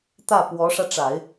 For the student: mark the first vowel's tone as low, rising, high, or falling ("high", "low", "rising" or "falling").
falling